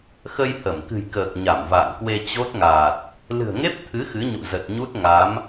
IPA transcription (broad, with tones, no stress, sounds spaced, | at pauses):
x ə˧ j h ə˧˩ m k ɨ̤˨˩ j k əː˨˩ k̚ ɲ a˧˩ m v a̰ː˧˨ ŋ k w e˧ t͡ɕ o˦˥ t̚ ŋ aː˨˩ t̚ | l ɨ̤˨˩ ə̯ ŋ e˦˥ p̚ t̪ʰ ɨ˨˦ x ɨ˨˦ ɲ ṵ˧˨ z ə˨˩ t̚ ɲ u˦˥ t̚ ŋ a˨˦ m